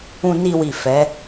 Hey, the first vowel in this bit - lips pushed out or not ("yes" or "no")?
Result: yes